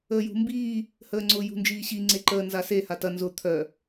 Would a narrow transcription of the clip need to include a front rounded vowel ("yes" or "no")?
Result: yes